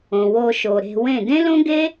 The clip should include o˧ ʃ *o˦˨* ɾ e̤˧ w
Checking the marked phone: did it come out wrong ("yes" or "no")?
yes